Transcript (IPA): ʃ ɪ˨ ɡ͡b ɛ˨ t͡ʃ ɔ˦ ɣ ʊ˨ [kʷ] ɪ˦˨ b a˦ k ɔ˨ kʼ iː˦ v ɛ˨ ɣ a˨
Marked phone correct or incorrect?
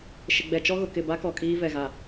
incorrect